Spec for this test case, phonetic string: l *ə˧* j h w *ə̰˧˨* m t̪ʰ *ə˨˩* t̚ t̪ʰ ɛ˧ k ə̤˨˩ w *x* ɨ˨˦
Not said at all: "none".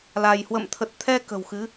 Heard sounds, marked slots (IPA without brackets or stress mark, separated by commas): a˧, ə̰˧˨, ə˨˩, x